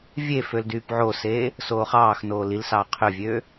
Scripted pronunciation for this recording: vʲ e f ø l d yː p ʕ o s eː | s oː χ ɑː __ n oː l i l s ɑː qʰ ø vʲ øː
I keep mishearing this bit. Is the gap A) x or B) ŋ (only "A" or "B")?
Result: A